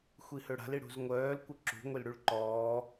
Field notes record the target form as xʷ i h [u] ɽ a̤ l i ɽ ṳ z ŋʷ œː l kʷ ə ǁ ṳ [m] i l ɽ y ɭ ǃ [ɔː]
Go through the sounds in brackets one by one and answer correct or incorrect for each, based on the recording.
incorrect: ø, incorrect: ŋʷ, correct

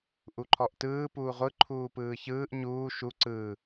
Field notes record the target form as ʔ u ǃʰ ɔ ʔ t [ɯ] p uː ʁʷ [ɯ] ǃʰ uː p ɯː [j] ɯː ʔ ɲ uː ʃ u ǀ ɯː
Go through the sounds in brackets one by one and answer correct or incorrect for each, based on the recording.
incorrect: ɯː, correct, incorrect: ç

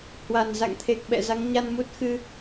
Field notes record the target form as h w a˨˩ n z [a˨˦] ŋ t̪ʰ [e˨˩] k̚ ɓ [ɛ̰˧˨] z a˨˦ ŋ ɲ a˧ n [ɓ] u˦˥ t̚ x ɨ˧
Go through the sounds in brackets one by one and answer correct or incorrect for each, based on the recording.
incorrect: a̰˧˨, correct, correct, incorrect: m

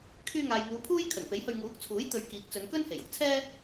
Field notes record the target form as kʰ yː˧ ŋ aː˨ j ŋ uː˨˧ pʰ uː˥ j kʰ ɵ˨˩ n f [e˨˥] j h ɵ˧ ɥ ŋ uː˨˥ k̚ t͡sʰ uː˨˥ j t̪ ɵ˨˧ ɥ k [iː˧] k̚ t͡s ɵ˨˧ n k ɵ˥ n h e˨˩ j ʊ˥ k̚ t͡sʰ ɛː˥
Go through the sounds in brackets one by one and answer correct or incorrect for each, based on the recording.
correct, incorrect: iː˨˥

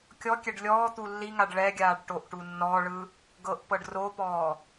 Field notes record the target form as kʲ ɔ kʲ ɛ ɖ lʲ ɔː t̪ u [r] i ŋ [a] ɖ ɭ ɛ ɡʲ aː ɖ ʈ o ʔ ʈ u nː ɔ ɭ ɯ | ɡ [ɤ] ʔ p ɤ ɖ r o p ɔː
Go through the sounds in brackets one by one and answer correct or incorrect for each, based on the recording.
incorrect: lː, correct, correct

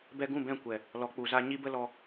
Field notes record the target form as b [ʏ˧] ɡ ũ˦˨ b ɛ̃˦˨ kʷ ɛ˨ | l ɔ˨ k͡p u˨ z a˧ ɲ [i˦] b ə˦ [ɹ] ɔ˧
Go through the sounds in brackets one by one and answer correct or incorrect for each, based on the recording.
incorrect: ɛ˧, correct, incorrect: l

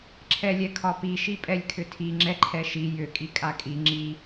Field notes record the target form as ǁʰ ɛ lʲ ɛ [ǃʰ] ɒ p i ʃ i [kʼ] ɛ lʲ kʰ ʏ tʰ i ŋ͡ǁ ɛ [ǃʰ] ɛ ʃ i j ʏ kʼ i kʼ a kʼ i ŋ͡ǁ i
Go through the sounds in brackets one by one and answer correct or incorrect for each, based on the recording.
incorrect: kʰ, incorrect: pʼ, correct

